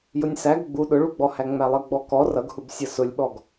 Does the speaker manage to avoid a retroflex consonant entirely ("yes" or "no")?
no